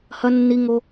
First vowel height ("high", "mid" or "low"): low